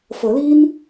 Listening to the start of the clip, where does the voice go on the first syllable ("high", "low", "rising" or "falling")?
rising